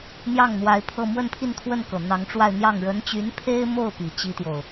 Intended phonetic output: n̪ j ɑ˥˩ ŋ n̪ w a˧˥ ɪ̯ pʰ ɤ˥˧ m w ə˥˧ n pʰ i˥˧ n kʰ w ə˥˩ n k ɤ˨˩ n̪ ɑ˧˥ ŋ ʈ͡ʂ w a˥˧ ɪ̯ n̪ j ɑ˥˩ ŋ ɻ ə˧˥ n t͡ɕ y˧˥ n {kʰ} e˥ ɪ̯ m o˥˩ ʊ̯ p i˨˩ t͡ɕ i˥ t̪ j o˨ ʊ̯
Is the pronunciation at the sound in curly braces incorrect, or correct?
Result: incorrect